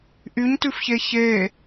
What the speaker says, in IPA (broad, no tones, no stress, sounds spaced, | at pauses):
ʔ y ɲ t ʉ f ç e ç e